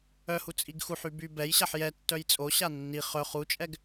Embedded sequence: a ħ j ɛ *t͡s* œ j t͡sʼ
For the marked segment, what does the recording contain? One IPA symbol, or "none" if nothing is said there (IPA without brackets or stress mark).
tː